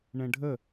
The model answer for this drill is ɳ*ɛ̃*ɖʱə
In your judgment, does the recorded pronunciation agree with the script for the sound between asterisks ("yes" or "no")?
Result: yes